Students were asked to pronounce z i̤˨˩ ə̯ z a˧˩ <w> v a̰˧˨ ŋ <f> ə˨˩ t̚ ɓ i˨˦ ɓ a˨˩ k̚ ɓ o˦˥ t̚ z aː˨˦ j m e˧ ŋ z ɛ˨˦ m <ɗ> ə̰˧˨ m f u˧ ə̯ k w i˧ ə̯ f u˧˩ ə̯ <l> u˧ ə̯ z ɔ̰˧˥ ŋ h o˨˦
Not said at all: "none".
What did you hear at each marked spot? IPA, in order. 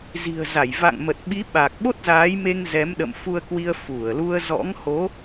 j, m, ɗ, l

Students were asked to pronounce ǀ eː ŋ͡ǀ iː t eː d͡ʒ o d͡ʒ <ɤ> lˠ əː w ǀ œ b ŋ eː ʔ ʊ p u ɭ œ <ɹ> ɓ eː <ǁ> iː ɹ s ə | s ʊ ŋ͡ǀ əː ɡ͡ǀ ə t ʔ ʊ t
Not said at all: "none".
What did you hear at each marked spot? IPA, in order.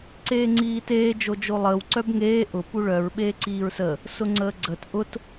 o, ɹ, ǀ

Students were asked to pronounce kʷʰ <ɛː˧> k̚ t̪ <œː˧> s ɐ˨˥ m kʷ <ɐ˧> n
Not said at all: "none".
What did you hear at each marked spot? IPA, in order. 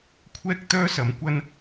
ɛː˥, œː˥, ɐ˥

